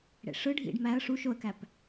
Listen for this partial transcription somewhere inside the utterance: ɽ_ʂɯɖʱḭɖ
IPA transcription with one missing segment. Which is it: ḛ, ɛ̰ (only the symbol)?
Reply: ḛ